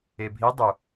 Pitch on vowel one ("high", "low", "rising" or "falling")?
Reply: low